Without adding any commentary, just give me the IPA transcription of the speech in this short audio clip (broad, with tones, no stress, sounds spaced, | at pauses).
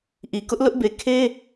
ʔ i˨ k ʊ˦ ʔ l ʊ˦ ʔ b e˨ kʰ e˦